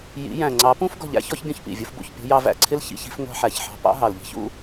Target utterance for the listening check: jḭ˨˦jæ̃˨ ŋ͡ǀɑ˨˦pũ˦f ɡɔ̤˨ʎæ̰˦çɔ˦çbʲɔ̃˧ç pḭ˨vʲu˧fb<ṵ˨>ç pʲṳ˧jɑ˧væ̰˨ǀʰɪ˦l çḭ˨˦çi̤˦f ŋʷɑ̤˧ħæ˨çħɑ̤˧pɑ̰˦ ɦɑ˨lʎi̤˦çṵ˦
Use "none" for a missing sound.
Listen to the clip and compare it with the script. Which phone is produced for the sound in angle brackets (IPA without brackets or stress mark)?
ṵ˨